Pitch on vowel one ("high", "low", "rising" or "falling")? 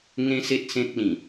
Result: high